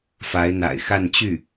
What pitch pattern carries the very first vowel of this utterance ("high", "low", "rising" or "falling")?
rising